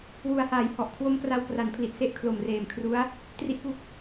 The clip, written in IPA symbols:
wu˩˦a̯haː˩˦j hɔ˨˩ʔkʰwo˦˥m kra˧wkra˩˦npʰli˨˩ʔse˥˩ʔ kʰlo˨˩mreː˨˩mkʰru˦˥a̯ | tri˦˥ʔku˦˥k̚

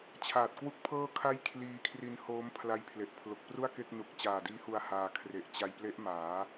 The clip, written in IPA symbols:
t͡ɕʰaː˨˩t̚kwu˥˩k̚pʰɤː˥˩kʰa˥˩j kʰliː˧kʰri˧n hoː˦˥mpʰla˦˥j pʰle˨˩ʔpʰlo˨˩k̚pru˥˩a̯ke˥˩k̚ nu˨˩k̚t͡ɕaː˨˩diː˦˥hu˧a̯ haː˧kʰre˨˩ʔ t͡ɕa˧jple˦˥ʔ maː˩˦

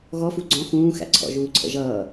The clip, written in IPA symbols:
ɣɔfu ɡ͡ǀɔ̃ xũːxæ̰ǀʰɔ̰ ʒuːǀʰə̰ʒʌː

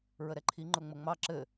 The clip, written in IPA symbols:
ɹəɾɛǃʰi ŋ͡ǃʊŋ͡məŋ͡mɑ ǁɘ

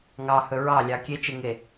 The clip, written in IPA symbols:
ŋɑhɵ ɹɑlʲɑ kʲet͡ʃeŋe

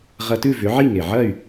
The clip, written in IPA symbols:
ʁɐ˧tʉ˥˩ vʏ˩˥ʕi˥˩ŋe˩ ʕɐ˥˩y̯

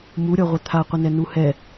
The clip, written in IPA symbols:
muɾʲɔʁʷɪ t̪ʰaqʷɪnɛnu hɛ

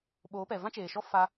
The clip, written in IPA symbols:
ɓoː˨˦pɛ˨ vã˦t͡ʃeː˨ʃɔ˦ fa˦

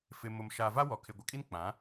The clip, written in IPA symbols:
fɪ˨mʊ˨m ʃa˨va˦ wɔ˨kʰɪ˨ɡʷɪ˨kʼi˦n k͡pã˨˦

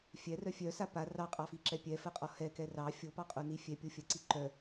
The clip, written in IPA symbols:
fʲɛrœ fʲœsa pa rɑqʼɑfiǁɛ pʲɛfɜqʼɔ hɛkɛ rɑ fʲopɑqʼoni fʲɛpʲofʲɜǀi ǃœ

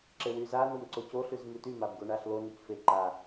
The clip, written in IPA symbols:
ǁewyza nomǀoco ɬʉzmʉty mabɡoɳaɬlo nycfe ǃa

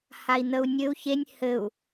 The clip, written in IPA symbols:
hai̯n̪əu̯nʲɘu̯ çenʲ hɘu̯

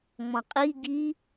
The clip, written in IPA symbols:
ŋ͡mɔ̃qʼi ɡi

